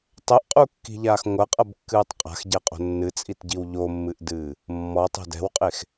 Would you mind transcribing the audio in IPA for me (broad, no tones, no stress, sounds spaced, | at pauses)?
tˤ ɛ ʔ qʼ u kː i̤ ʎ aː x ŋʷ ɐ qʼ ɐ b kː ɨː tˤ qʼ a̤ x ɟ ɛ qʼ o̤ nː ɨ t͡sʼ i t ɟ i w ʎ o mː ɨ ʔ d ɨː | mː ɔ tˤ e̤ d ɛ̤ w qʼ e x